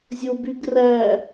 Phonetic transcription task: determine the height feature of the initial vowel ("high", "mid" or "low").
mid